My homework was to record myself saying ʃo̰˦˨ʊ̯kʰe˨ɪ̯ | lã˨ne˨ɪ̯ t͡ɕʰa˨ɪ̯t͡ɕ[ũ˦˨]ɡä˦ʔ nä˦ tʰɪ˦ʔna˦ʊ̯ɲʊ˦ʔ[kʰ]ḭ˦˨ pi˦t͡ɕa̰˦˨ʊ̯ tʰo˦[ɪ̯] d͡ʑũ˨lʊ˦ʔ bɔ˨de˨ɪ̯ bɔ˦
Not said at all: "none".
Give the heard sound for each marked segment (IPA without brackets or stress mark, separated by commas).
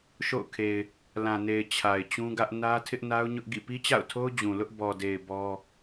ũ˦, ɡ, ʊ̯